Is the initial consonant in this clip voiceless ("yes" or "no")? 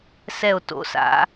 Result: yes